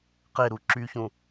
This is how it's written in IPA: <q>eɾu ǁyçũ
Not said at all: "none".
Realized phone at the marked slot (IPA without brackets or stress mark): q